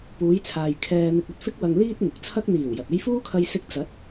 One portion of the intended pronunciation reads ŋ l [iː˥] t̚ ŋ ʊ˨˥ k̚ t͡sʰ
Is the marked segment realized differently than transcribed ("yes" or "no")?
no